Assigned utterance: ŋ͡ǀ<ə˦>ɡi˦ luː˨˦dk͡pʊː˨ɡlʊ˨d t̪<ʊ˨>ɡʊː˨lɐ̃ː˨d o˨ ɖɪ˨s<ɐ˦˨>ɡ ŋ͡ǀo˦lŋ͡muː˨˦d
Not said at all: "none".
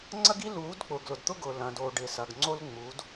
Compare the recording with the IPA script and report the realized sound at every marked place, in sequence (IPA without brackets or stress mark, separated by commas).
ɐ˦, ʊ˦, ɐ˨